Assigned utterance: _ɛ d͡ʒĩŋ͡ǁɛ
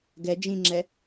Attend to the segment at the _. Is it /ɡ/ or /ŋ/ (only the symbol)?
ɡ